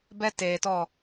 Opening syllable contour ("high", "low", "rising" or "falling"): high